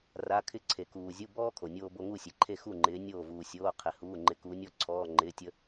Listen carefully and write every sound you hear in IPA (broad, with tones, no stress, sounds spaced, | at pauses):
r a˧˥˧ kʰ ɪ˥ ǀʰ e˨ k uː˨ zʲ u˧˥˧ b ɔː˥ kʰ o˨ nʲ oː˥ b o˥ ŋ u˥˨ sʲ e˨ ǃʰ e˥˨ x u˥˨ ŋ͡ǃ ɪː˨˦ nʲ oː˥˨ v uː˨ sʲ oː˧˥˧ qʰ ɪ˨ h uː˧˥˧ ŋ͡ǃ ɪ˧˥˧ k u˨˦ nʲ ɔ˥ ǀʰ ɔː˧˥˧ ŋ͡ǃ ɪː˧˥˧ tʲ ə˥